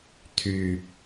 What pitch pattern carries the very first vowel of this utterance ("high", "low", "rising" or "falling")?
low